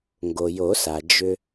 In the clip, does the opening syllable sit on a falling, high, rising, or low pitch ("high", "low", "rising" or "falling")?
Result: low